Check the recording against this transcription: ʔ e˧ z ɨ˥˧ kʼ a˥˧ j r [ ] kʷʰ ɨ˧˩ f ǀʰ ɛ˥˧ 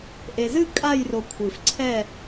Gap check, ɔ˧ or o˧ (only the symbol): o˧